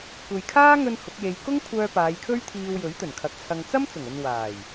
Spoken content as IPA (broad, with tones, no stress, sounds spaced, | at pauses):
kʷ e˨ j kʰ aː˥ ŋ ɵ˧ n h ʊ˨˥ k̚ j e˧ j k ʊ˥ ŋ kʷʰ œː˧ p aː˨˧ j kʰ ɵ˥ ɥ t̪ʰ iː˧ w j ɵ˨˥ ɥ t̪ ɵ˨˩ n kʰ ɐ˨ k̚ t͡sʰ ɐ˧ ŋ t͡s ɐ˥ m t͡s ʊ˨˩ ŋ ɵ˨ n w aː˨˩ j